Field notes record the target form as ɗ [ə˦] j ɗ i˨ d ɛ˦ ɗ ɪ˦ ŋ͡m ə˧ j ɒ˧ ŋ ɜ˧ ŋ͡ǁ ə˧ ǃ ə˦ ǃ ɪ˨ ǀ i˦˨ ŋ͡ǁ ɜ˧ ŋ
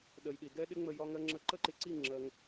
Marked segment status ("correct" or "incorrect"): incorrect